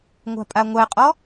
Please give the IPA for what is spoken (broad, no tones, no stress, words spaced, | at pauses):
ŋʷa̤pʼaŋʷæqʼɔ